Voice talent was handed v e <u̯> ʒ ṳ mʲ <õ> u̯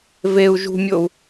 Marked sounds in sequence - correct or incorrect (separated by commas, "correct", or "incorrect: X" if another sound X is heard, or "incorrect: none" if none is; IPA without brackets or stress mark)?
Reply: correct, incorrect: o